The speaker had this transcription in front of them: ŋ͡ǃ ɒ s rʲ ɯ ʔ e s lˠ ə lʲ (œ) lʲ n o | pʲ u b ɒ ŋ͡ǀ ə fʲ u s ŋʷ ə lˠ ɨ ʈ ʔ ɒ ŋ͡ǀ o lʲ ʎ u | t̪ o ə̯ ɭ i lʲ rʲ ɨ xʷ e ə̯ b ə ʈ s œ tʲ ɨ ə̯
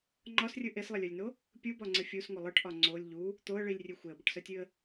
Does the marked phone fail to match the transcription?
no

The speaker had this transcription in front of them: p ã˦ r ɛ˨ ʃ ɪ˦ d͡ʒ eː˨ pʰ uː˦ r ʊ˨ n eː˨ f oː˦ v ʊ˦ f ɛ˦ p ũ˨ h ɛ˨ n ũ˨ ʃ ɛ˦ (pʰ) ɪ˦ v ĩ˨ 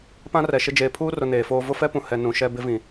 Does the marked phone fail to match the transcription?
yes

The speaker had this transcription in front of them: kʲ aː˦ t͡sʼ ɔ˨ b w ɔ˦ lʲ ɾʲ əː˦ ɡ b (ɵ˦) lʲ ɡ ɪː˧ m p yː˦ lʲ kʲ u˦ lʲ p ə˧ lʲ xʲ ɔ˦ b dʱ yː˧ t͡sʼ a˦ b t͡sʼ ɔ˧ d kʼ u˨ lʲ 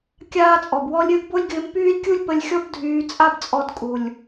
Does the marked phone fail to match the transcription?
yes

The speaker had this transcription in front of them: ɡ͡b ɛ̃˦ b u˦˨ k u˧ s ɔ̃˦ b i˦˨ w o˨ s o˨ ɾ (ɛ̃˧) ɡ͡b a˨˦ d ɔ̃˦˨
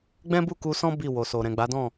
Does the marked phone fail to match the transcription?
yes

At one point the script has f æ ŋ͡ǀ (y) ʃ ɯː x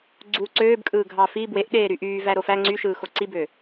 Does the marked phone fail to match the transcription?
no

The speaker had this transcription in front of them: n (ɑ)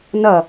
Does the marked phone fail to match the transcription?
yes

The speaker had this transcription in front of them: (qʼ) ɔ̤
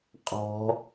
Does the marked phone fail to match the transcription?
no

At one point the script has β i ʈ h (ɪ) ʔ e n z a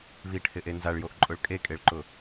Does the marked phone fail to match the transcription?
no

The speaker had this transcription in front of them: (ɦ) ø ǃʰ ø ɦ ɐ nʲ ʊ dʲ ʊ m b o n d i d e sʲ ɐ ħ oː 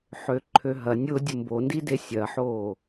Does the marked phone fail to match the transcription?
yes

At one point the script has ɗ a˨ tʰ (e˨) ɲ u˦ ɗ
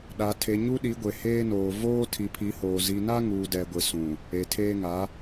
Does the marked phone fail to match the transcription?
no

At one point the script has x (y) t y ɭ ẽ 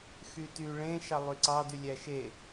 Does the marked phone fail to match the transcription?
no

